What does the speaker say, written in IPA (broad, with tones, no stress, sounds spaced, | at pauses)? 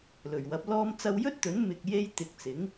l ɵ˨˩ ɥ w ɐ˨˥ p̚ l ɔː˧ m t͡s ɐ˧ w j ɵ˥ t̚ t̪ ɵ˨˥ n m ɪ˨ k̚ j e˥ j t̪ ɪ˨ k̚ t͡s ɪ˨˥ ŋ